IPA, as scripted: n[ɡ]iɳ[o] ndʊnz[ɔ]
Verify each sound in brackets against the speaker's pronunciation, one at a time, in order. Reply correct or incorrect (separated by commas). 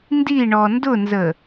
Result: incorrect, incorrect, incorrect